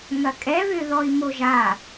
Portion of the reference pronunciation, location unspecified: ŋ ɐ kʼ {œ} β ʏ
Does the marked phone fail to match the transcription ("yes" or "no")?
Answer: yes